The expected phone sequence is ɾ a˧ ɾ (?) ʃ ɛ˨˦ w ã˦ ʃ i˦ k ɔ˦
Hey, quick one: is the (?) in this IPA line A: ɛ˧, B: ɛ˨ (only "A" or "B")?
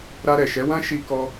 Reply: B